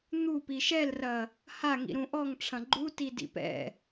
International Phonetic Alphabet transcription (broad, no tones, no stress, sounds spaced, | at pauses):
n̪ u p i ʃ ɛ l r ɐ | h a ŋ ḭ ɾ ũ ʔ ɔ ŋ ʈ͡ʂʰ ɐ̃ ɡ͡ǃ u t i d ḭ p ɛ̰